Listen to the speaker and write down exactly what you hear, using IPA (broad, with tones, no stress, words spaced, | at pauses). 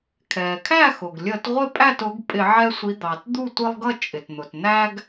kʰɛː˩kʰæ˥˨xʊ˩ɡ lʲəː˧˩˧tʁʷɪ˥˨ pʼæ˥˨tʊ˨˦ɡ pʼɪ˧˩˧ʕɛ˦sʷi˨˦ d̪ɑ˩t d̪u˥˨tʷɪ˦lˠɡʌ˥˨ t͡ʃʼɪ˩tn̪ʊ˩t n̪æ˦ɡ